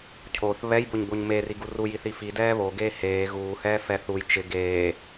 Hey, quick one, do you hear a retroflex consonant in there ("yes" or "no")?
no